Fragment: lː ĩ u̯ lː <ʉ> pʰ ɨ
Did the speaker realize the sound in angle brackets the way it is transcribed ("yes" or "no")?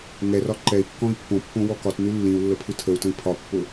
no